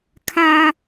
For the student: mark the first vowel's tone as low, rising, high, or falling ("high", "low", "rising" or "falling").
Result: high